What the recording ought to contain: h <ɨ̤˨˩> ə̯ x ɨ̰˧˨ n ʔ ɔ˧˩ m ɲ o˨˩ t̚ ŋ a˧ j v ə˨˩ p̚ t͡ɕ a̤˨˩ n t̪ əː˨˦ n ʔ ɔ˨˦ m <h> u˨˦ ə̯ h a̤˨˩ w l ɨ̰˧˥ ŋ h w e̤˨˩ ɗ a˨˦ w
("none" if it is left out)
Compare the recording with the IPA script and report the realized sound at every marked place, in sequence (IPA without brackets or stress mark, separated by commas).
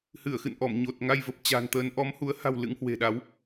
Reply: ɨ˧˩, h